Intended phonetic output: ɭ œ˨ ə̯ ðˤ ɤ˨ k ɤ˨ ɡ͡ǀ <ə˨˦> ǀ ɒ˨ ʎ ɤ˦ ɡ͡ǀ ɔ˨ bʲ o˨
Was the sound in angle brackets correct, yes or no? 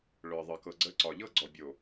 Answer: yes